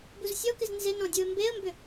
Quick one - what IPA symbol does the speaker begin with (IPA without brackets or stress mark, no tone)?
b